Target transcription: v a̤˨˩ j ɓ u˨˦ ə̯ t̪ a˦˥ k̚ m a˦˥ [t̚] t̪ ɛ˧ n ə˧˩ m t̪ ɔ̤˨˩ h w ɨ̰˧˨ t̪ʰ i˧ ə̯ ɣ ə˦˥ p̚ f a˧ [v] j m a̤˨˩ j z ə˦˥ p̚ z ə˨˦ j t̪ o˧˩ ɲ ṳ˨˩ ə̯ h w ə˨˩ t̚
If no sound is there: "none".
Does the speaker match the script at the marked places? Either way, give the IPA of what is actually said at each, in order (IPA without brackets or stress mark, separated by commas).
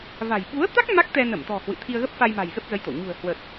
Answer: k̚, none